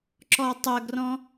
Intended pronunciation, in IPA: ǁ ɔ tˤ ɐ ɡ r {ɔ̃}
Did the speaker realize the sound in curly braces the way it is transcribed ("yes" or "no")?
yes